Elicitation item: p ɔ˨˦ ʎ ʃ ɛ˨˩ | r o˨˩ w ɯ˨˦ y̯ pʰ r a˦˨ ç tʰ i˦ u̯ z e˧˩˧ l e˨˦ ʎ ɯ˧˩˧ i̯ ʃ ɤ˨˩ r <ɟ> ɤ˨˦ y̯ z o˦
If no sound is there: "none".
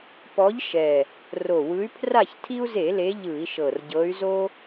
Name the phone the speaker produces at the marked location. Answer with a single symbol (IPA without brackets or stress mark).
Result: ɟ